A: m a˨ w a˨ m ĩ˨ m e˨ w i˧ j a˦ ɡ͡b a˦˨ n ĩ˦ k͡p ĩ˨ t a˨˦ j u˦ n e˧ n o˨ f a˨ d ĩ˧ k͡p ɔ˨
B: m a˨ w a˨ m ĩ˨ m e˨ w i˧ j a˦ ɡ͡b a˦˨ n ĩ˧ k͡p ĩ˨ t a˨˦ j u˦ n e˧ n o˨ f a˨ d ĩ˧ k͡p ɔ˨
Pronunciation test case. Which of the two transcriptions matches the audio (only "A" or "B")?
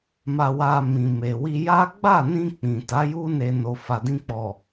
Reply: B